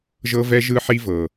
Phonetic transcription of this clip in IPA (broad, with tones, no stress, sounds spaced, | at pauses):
ʒ ɤ˦ v ɛ˦ ʒ ɯ˦ ħ i˦ v ɤ˨